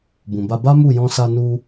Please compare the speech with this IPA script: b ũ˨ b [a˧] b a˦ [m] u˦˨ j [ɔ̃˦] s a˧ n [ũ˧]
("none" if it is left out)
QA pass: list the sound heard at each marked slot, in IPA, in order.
a˧, m, ɔ̃˧, u˧

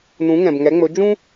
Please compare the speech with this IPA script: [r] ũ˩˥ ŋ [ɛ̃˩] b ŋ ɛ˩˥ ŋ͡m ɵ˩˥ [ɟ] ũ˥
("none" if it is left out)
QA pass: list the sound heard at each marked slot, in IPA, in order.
n, ɛ̃˩, d͡ʒ

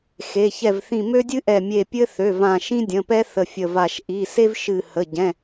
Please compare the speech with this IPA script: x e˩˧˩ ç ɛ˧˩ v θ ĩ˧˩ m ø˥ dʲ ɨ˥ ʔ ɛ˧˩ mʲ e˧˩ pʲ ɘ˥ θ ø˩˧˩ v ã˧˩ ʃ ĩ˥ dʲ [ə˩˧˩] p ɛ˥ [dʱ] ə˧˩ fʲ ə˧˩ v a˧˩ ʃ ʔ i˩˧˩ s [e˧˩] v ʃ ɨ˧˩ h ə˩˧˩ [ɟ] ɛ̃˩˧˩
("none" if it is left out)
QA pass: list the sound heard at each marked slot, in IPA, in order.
ə̃˩˧˩, θ, e˥, ɟ

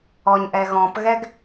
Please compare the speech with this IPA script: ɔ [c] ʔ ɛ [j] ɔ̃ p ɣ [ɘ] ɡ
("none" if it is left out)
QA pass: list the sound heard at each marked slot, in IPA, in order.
ɲ, ɣ, ɛ

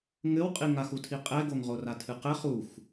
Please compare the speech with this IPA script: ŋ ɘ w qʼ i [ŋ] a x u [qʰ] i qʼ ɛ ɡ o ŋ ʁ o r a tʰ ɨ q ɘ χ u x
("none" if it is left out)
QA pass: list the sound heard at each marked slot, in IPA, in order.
ŋ, tʰ

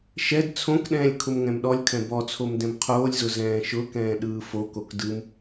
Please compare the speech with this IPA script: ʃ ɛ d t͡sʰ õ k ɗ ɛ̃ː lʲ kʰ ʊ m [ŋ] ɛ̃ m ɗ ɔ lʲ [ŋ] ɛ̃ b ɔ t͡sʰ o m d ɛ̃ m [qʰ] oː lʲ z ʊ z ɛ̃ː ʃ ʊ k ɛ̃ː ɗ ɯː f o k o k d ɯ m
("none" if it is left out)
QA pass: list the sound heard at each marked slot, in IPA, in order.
ŋ, kʰ, qʰ

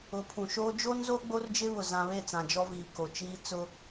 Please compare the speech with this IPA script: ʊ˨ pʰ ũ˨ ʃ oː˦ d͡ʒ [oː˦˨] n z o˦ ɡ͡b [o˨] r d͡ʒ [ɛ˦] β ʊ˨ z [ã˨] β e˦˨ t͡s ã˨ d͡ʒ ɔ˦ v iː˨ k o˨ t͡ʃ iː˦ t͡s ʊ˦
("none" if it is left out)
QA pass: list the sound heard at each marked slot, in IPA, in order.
oː˦, o˦, ɪ˦, ã˨

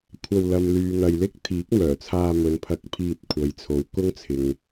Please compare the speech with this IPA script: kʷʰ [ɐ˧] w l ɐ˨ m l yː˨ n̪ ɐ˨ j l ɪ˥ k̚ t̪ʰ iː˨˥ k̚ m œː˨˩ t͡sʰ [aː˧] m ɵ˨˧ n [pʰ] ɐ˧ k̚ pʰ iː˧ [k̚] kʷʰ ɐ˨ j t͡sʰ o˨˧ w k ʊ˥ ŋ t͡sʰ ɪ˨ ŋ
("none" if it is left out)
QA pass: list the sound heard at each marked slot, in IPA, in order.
ɐ˧, aː˧, pʰ, t̚

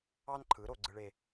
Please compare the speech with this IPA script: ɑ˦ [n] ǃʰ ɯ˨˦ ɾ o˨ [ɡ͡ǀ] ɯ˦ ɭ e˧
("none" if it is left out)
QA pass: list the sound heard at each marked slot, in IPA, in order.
n, ɡ͡ǀ

